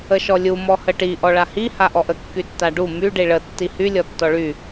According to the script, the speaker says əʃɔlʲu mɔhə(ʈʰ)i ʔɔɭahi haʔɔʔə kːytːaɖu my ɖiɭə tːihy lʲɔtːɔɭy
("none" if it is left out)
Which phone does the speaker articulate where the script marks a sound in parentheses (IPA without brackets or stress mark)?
ʈ